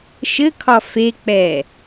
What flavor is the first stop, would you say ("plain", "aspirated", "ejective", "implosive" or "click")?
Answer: aspirated